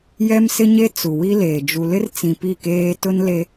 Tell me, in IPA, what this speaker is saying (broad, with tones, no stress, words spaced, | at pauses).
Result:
jɛ˦msɪ˦ɲe˦ t͡su˨wi˦leː˨ d͡ʒu˨lɪ˦rt͡sĩ˨ pi˦˨keː˦ tʊ˦nle˦